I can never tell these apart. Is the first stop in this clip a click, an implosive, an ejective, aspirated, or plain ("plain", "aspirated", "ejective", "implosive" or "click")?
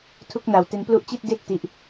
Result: aspirated